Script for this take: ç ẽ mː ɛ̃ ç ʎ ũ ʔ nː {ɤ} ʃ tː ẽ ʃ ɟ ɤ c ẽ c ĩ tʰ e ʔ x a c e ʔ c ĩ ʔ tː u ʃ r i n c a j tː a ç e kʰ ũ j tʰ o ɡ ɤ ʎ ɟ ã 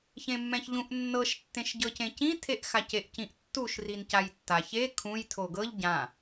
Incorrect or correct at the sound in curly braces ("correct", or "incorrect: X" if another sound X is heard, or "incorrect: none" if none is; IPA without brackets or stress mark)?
correct